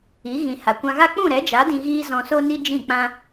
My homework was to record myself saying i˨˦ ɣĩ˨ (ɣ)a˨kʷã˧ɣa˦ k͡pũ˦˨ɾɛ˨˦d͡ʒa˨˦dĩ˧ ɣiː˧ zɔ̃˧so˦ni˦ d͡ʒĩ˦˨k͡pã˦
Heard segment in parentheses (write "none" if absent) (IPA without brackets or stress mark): h